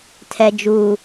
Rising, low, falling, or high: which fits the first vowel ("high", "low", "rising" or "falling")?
low